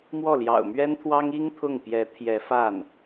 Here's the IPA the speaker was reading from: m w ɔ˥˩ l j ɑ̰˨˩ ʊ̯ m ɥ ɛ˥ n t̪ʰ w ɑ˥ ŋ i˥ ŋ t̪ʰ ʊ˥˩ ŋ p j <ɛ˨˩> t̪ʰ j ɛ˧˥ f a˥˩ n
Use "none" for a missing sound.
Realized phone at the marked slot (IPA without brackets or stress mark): ɛ˧˥